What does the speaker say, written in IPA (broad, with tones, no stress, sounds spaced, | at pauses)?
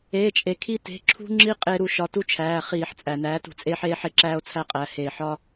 eː˩˧˩ t͡ʃʼ e˩ kʰ i˦ t e̤˩˧˩ ǁʰ ṳ˦ ŋ͡ǁ i˦ qʼ e˦ ɾ u˩˧˩ ʃ ɒ˨˥ t u˦ t͡ʃʰ æː˩˧˩ χ iː˧˩˧ ħ t͡sʼ æ˩ n æː˨˥ t ṳ˧˩˧ t͡sʼ eː˦ ħ eː˦ ħ e˦ ǁ æː˦ o̯ t͡sʰ æ˦ qʼ æ˩˧˩ h e˧˩˧ ħ ɒ˦